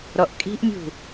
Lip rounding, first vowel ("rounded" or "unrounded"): rounded